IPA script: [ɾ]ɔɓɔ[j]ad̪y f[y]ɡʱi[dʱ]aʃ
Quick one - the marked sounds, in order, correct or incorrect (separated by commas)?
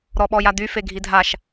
correct, correct, incorrect, correct